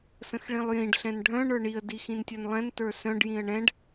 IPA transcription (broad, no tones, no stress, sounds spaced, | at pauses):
s ə̃ x ɭ ĩ lˠ j ĩ ɖ ɬ ɛ̃ n ɖʱ œ̃ ɳ ə˞ ɳ i ə̯ d i x ĩ n tʲ œ n lˠ ɛ̃ n t ə˞ s œ̃ ɖ j ĩ ə̯ ɳ ɛ̃ ɖ